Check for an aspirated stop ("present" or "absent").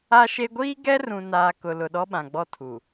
present